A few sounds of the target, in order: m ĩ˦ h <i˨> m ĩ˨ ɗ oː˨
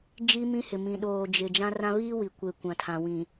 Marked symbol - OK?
no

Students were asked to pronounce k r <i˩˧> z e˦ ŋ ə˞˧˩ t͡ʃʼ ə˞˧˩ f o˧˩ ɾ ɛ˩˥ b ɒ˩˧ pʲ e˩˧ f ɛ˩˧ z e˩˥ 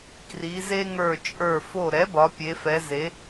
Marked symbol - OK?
yes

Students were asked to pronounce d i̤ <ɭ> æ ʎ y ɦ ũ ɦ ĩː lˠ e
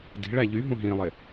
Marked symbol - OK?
yes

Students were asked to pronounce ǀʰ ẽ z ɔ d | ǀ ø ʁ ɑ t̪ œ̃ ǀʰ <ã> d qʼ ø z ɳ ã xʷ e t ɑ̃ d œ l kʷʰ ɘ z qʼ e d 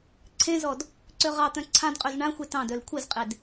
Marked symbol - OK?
yes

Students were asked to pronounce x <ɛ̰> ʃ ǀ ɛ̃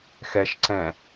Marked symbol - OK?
no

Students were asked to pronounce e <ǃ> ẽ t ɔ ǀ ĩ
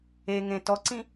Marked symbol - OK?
no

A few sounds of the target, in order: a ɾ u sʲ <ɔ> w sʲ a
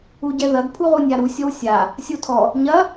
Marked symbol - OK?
yes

